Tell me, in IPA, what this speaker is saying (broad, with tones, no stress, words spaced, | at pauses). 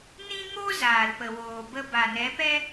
nĩ˦ŋo˦ zaː˨lpə˨woː˨bə˧ ba˨nɛ˨˦pɛ˦